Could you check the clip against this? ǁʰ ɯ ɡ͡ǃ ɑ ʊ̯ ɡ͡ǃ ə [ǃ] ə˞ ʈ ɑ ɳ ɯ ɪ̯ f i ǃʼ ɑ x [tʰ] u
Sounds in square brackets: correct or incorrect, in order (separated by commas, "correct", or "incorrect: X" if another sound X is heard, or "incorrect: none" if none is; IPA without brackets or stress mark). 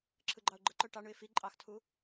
correct, correct